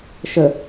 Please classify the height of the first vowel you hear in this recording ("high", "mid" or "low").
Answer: mid